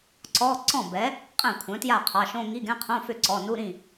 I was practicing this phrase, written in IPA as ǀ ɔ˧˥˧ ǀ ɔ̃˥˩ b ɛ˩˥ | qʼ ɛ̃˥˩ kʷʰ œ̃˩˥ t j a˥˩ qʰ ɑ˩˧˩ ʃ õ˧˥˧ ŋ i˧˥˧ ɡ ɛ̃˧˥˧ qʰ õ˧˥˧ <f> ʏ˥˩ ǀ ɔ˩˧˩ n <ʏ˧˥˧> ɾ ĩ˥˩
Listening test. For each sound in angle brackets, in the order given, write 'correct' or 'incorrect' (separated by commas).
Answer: correct, incorrect